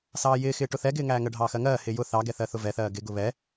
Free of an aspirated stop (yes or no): yes